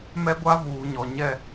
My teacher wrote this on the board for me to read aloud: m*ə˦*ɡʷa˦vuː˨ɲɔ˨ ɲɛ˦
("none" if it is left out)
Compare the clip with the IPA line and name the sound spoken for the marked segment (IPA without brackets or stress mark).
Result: ɛ˦